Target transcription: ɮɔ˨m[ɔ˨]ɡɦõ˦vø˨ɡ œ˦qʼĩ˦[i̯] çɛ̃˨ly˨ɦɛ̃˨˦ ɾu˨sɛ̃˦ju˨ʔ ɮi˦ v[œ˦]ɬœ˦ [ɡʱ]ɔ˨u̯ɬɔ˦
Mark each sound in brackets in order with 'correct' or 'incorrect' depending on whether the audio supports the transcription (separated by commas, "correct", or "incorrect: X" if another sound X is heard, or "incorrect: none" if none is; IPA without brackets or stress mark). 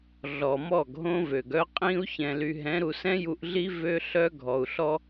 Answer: incorrect: ɔ˦˨, incorrect: u̯, incorrect: ø˦, correct